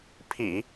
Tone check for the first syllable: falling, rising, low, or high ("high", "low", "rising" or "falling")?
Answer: low